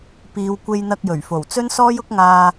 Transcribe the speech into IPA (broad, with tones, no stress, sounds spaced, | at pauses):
p iː˨ w kʷ e˧ j n̪ ɐ˧ k̚ j ɵ˨˩ ɥ f o˨˩ w t͡s ɵ˥ n s ɔː˥ j ʊ˥ k̚ ŋ aː˧